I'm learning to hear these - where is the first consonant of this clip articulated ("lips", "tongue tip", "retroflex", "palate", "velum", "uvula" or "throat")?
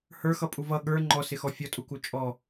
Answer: throat